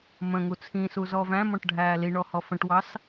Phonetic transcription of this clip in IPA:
m ə̃ ŋ u t͡sʰ ĩ s u z ɔ v æ̃ m ɔ̃ ʈ ɖʱ æː l i ɳ ɔ h ɔ f ə̃ ʈ w ɑ s

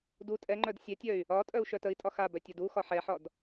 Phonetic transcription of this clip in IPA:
d u tʼ ɛ ŋ͡ǃ œ d sʲ ɛ tʲ œ y̯ | ɒ tʼ œ u̯ ʃ œ t ə i̯ tʼ ɒ x a b œ tʲ ɒ d u x ɒ ħ ɛ ħ ɒ d

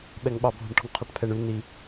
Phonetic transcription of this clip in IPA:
ɓ ɛ ŋ ɓ ɑ bʱ ṳ ɳ ʈ ɔ̤ ŋ qʰ ɑ ʈ pʰ ɛ ɳ ʉ n i

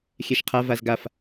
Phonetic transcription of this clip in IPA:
xʲ ɛ ʃ qʰ a v a z ɡ a f

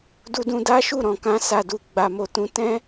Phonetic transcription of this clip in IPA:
d u˧ d ũ˧ d a˦ ʃ u˦˨ ɾ ɔ̃˨ k ã˧ s a˨ d u˨ ɡ͡b a˨ m o˨ t ũ˨˦ t ɛ̃˦

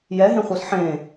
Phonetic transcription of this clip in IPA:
j ɛ ɦ ẽ χʷ ɤ s ħ ẽ

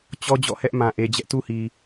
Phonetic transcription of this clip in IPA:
t͡ɕ ɔ˦ d͡ʑ ɔ̰˦˨ h ɛ˦ ʔ m ã˨ ʔ e˨ d͡ʑ ɛ˦ ʔ t u˦ h i˨

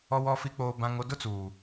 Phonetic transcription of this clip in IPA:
ɔ˦ w ɔ˦ f i˦ k͡p oː˦ b ã˦ ŋ o˦ d ʊ˦ t͡s uː˨

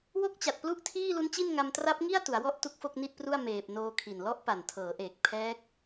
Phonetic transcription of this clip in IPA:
w o˥˩ k̚ t͡ɕ a˨˩ t̚ p l u˥˩ ʔ tʰ iː˥˩ l u˦˥ n t͡ɕ i˥˩ n ŋ a˧ m t r a˦˥ p̚ ŋ i˥˩ a̯ t u˩˦ a̯ w ɔ˥˩ ʔ t u˥˩ k̚ f o˥˩ k̚ n i˥˩ t̚ p r u˥˩ a̯ m eː˨˩ p̚ n oː˧ kʰ i˨˩ n l ɔ˦˥ ʔ p a˨˩ n tʰ ɤː˩˦ ʔ eː˨˩ k̚ pʰ ɛː˦˥ k̚

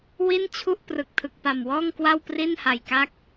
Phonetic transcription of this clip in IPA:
w i˥˩ n t͡ɕʰ u˥˩ ʔ p r ɯ˨˩ k̚ tʰ ɯ˨˩ k̚ p a˨˩ m w ɔː˥˩ ŋ k w a˥˩ w p r i˥˩ n h a˨˩ j k a˥˩ k̚

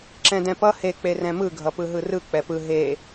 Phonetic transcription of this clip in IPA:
ǁ ɛ̃ d ɛ̃ p ʌ h e k͡p e r ɛ̃ m ɯ ɡʱ ʌ p ɯ ɦ ɯ r ɯ k͡p ɛ p ɯ ɦ e

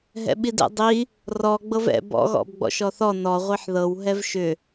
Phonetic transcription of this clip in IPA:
ɦ ɛ̰ ɓ i d ɛ̰ dˤ i | r ɔ ɡ͡b ɤ v ɛ̰ b ɔ̰ ɣ ɔ̰ b ɡ͡b ɔ̰ ʃ ɔ θ ɔ n ɔ ʁʷ i ħ ð ɤ w ɦ ɛ v ʃ ʏ

